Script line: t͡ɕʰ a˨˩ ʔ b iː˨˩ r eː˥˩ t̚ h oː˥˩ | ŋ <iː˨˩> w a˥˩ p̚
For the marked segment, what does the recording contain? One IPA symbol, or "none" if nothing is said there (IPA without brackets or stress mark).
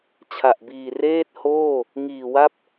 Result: iː˨˩